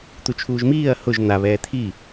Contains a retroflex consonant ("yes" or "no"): no